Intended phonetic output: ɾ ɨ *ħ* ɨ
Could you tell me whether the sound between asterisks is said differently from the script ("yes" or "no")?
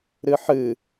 no